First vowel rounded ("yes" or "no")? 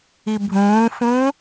no